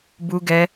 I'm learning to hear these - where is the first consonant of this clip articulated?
lips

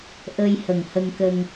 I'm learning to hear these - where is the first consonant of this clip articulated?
throat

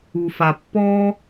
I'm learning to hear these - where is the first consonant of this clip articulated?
lips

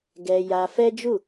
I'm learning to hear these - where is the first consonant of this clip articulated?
velum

